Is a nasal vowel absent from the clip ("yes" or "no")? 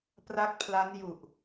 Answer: yes